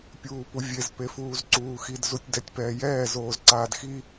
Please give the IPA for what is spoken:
pʲuːpuvʲez pefuːzǀuːxid zutʲdɛtʲpɛːjɛː zoːzǀaːdxi

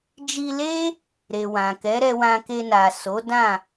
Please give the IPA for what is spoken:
d͡ʒi˧le˦ | ɾe˨wã˨kɛ˨˦ ɾɛ˧wã˧ke˧na˨ so˨˦dã˦˨

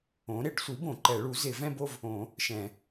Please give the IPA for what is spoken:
õ˩˥ ɾɪ˨˩˦ɖsʷi˩˥ bõ˨˩˦ǃɛ˨˩˦ ɭu˩˥zɪ˨˩˦ vɛ̃˥˧bo˥˧v | õ˨˩˦ | ʃɛ̃˨˩˦

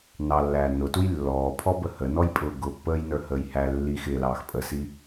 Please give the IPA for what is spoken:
nɑlːæː nʊtuj lːɔːpʰɔbə hənɔjpʼʊː ɡʊpːəːjnə˞həːj hæ lːi xɪlɑːxpʼəsi

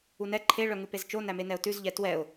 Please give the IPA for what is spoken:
unɛ ǃʰe ɭœŋʉpezt͡ʃo næmenɛʊ̯tʉz ʎɛtwɛʊ̯

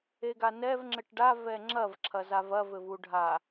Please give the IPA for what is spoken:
eɡanɛv ŋ͡ǁɘʈɖa vɛŋ͡ǁɐv ǁʰɐzavɐ vɘvuɖʱa

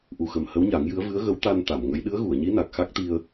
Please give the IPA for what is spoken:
ʔu˨˩xə˨˩m hə˧˥wɲa˨˩˦ŋjɨ˧˥ə̯ vɨ˧˥ə̯ɣə˧˥wt̪a˧n t̪a˨˩˨mŋə˧˥j ɗɨ˧˥ə̯ɣu˨˩˨ə̯ɲi˧˥na˨˩k̚ xa˦˥k̚t̪i˧ə̯

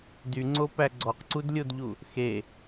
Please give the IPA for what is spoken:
dyŋ͡ǀopæ ɡ͡ǀɔqǀudlʲodʎu | xe

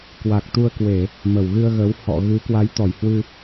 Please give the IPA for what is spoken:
kwa˨˩k̚t̪u˧ə̯kwe˧˩˨ | mə˧˩wɣɨ˧ə̯ɣə˨˦w hɔ̰˧˨ɣɨ˨˦ kwa˨˦jt̪ɔ˧˩jhwɨ˧

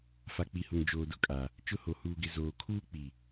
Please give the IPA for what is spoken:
fa˨k͡pi˨hʊ˨ŋ d͡ʒoː˨dʊ˦kʼa˨ | t͡ʃʊ˦ho˨ huː˨ɡɪ˨ zoː˨ kʰuː˦k͡pi˨

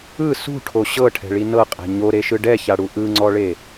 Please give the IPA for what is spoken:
ɯ sṳʈʰo ɕɤʈʰɛ̤ɭi nɤqʼɛ̤ ɲoɾeʃɯ ɖɛçaɽu ʔɯŋ͡ǀɔɭe

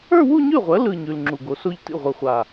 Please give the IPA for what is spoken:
ə˞˥˧wu˥˧ɲʉ˥˩ʁʷɜ˩˥ lɯ˥˧ɲʉ˩˧˩l ŋ͡ǁu˧˩ɡo˨˩˦so˥˧ʎ tḭ˥˩ʁʷɯ˧˩χʷa˧˩

